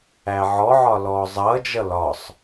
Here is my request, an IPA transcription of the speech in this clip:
æ ʕ ɔ ʕ ɒ l ɔː zˤ ʌː d͡ʒ ʌ l ɒ sˤ

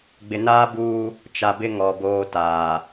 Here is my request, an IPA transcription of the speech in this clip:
ɡ͡b ɪ˨ n aː˦ b uː˦ | t͡ʃ a˨ b ɪ˦ ŋ ɔ˨ b oː˦ t aː˨

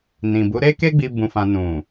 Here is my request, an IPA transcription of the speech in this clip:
n ĩ˨ b u˨˦ ɾ e˦ k e˦ ɡ͡b i˧ b ũ˧ f ã˧ n ũ˨

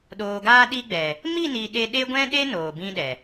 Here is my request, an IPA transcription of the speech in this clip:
ɗ oː˨ ɡ aː˧ ɗ i˧ ɡ͡b ɛ˨ | m i˦˨ n i˨ ɗ e˧ ɗ e˦ ɡʷ ɛ̃˦ ɗ e˦ n oː˨ b ĩ˦ ɗ ɛ˨

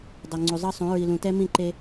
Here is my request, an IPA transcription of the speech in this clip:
dˤ ɛ˨ ŋ͡ǀ u˨ zˤ ɤ˦ sˤ ũ˨˦ ɹ i˨ l ũ˨ t ɛ˦ m ĩ˦˨ ǃ e˦

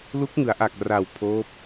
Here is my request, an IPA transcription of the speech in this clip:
l u˦˥ k̚ ŋ ɯ˩˦ a̯ ʔ a˨˩ k̚ r a˨˩ w pʰ oː˦˥ p̚

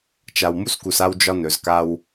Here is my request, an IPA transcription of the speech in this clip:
t͡ʃ a˨ w m u˦ s k u˨ s a˦ w d͡ʒ ɒ˦ n ɵ˨ z k a˦ w

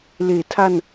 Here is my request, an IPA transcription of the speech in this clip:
l eː˩˦ tʰ a˧ n

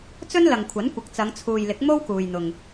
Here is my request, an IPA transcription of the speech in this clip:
t͡s ɵ˥ n l ɐ˨ ŋ kʷʰ ɐ˨˥ n kʷ ɐ˨˥ k̚ t͡s ɐ˨˧ ŋ t͡sʰ uː˨ j l ɪ˨˥ k̚ m o˥ w k uː˨ j n̪ ʊ˨ ŋ

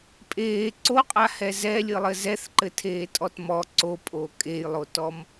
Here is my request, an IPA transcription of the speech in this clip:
pʼ eː ǀ o qʼ a h ɛ z ɛ lʲ ɨ lˠ ɘ z ɛ θ ǃ ɘ tʰ eː tʼ ɔ t m ɔ ǀ o pʼ o kʼ e j lˠ o t ɔ m

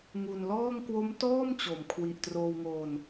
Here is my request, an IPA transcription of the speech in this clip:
ŋ u˧ n l ɔː˥˩ ŋ k w o˦˥ m t ɔː˥˩ m t͡ɕ o˨˩ m kʰ w i˨˩ ʔ t r oː˧ w ŋ oː˧ n

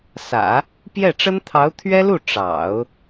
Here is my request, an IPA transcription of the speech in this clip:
s ä̰˨˩˦ | p j ɛ˥˩ ʈ͡ʂ ə˥ n t̪ʰ ɑ˧˥ ʊ̯ t̪ʰ ɥ ɛ˥ l u˥˩ ʈ͡ʂ ɑ̰˨˩˦ ʊ̯

